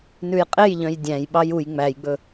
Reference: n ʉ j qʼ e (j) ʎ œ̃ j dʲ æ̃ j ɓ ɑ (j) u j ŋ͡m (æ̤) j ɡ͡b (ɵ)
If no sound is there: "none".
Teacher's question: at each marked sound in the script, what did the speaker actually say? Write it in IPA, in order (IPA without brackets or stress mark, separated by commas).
j, j, æ, ɵ